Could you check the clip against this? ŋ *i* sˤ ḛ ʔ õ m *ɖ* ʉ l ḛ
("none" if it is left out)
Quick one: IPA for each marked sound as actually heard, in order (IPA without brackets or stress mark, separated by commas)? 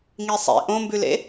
i, b